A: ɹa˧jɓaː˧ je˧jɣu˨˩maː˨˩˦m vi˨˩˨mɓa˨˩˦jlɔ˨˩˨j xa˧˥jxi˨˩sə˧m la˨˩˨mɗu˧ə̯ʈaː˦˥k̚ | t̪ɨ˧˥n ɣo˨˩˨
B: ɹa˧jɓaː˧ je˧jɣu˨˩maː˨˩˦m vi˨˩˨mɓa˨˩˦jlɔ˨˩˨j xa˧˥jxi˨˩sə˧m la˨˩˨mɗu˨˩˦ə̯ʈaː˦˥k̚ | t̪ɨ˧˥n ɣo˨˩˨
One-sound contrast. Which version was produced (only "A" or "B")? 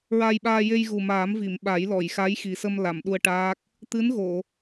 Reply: A